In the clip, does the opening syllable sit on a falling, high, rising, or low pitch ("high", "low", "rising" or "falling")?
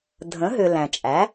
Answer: rising